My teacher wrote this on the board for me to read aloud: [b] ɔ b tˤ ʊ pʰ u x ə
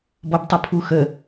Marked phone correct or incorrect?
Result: correct